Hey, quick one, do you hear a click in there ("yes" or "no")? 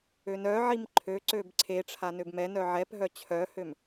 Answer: yes